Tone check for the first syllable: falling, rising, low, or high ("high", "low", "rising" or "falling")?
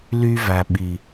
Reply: high